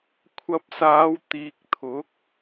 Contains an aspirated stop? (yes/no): yes